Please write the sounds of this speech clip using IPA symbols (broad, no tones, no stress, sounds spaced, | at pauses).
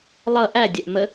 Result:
lˠ ʌ ʔ æ dʲ ɛ ʔ m ə